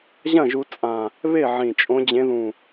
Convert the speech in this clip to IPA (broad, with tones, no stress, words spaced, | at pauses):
ʑɐ̃˥˩ʒu˨˦t͡sʼã˨˩ | βe˥˩ʕĩ˨˩ t͡ʃʼõ˨˦d͡ʑẽ˨˦ðũ˨˩